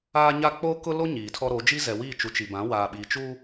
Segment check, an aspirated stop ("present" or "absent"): present